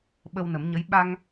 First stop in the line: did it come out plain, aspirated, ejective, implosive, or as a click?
implosive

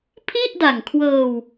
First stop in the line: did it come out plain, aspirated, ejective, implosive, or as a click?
aspirated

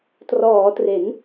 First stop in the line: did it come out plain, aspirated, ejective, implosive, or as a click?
plain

